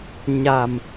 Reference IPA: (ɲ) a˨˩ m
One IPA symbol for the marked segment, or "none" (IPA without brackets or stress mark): ɲ